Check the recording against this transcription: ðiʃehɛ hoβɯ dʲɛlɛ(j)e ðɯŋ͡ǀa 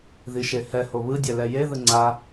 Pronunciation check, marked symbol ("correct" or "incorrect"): correct